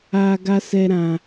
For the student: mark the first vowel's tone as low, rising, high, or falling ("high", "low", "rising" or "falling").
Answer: low